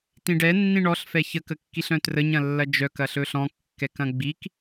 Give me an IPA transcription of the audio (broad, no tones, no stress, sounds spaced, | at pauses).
t ĩ ɖ ɛ nː ĩ ɳ ɔ ɬ f ɛ ç ə k ə kː i ɬ œ̃ t r ə ɲ ɐ̃ lː ɐ d͡ʒ œ k ɐ ɬ ɵ ɬ ɔ̃ kː ɛ k ɐ̃ ɡ͡b i k